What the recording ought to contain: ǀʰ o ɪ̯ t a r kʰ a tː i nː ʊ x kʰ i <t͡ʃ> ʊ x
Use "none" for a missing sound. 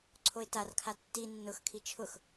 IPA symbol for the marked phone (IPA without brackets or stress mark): t͡ʃʰ